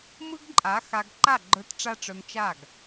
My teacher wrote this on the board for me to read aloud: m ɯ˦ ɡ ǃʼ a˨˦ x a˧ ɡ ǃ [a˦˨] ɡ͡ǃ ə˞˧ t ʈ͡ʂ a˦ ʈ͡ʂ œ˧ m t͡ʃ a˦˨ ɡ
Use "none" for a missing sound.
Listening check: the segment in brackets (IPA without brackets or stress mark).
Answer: a˦˨